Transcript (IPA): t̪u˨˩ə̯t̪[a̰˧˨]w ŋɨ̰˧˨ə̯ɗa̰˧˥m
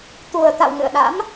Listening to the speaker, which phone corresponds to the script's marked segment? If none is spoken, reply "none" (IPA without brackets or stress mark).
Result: a̰˧˨